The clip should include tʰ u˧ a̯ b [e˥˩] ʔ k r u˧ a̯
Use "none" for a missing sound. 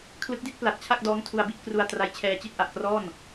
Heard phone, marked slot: i˥˩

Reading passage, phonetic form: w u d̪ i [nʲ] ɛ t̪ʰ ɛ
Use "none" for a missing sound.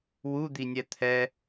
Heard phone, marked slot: nʲ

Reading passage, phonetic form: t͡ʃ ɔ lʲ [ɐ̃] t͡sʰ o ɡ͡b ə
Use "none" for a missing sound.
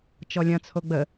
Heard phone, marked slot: ɐ̃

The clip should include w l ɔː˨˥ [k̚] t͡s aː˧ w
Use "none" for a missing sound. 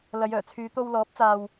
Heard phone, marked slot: p̚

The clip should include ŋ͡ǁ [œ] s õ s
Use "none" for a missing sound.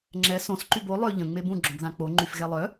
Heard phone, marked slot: ɛ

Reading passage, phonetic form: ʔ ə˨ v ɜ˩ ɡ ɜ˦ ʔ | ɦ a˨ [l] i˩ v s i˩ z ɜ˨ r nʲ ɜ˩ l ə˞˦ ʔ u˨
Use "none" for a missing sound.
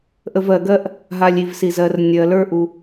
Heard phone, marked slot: lʲ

